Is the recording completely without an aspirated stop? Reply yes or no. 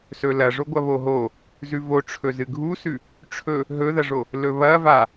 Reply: no